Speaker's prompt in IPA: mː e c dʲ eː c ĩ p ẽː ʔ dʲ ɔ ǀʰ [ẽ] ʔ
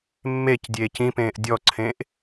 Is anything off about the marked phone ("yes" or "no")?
no